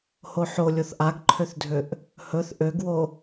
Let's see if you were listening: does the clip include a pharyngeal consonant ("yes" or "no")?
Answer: yes